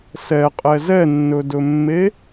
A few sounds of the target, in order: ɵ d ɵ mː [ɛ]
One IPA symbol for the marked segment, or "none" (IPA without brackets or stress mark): e